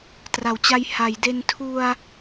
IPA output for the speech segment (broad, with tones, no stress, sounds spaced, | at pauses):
t r a˩˦ w t͡ɕ a˧ j h a˩˦ j d e˧ n tʰ u˧ a̯